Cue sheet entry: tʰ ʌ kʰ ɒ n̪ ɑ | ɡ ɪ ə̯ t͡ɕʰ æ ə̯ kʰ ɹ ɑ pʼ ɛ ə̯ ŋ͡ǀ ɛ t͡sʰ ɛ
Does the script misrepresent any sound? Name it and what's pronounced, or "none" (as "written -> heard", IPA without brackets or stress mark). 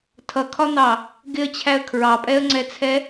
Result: none